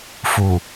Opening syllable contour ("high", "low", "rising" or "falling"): low